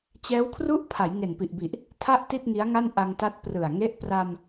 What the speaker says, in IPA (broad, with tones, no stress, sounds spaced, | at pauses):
t͡ɕ ɛː˦˥ w kʰ r u˥˩ ʔ pʰ a˩˦ j ŋ e˨˩ n p i˨˩ ʔ b i˨˩ ʔ | tʰ a˥˩ ʔ t i˥˩ t̚ ŋ i˦˥ a̯ ŋ a˥˩ n ʔ a˧ ŋ t a˦˥ t̚ p r ɯ˨˩ a̯ ŋ e˦˥ ʔ p r a˧ m